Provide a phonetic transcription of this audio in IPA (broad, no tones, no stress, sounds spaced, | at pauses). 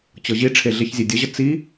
t͡ɕ ɤ ʑ i ʈ͡ʂʰ e ɮ e ç zʲ e dʲ ə ʑ ə t͡s i